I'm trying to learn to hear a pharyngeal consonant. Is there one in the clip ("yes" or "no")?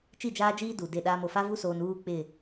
no